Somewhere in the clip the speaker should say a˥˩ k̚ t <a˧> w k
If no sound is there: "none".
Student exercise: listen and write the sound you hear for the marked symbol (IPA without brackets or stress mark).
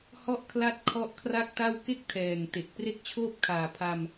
a˥˩